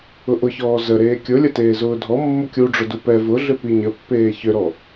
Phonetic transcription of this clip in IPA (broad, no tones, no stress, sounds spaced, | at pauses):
ʊ ʔ ʊ ç ɔː z ə ɾ eː kʲ ʊ lʲ ə t eː z ʊː dʱ ɔ mː ʊ kʲ u ɖ͡ʐ ʊ d u p ɛ v ʊ ɮ ʏ p i ɲ ə pː eː ç ʏ ɾ ɔ